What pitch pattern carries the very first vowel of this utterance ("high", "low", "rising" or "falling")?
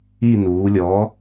falling